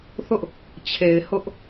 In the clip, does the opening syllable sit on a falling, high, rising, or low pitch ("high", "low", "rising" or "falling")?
high